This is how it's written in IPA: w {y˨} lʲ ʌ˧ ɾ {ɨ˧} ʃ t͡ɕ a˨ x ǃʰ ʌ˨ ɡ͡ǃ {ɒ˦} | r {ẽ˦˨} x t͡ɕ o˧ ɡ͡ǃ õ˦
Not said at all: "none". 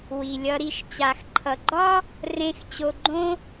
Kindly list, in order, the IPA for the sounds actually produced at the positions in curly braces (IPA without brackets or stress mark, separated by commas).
i˨, i˧, ɒ˦, ẽ˦